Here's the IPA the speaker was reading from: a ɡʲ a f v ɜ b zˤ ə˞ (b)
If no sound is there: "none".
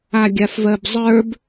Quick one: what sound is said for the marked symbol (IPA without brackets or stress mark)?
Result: b